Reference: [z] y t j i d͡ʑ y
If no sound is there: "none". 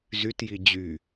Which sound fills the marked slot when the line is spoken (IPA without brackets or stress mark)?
z